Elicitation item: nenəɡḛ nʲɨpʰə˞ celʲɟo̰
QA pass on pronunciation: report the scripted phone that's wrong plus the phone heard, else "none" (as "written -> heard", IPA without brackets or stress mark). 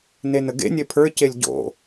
ɨ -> e